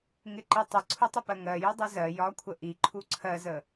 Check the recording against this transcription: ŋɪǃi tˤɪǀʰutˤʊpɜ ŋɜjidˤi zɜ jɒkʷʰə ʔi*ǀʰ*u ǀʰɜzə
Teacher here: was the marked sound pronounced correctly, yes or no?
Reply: no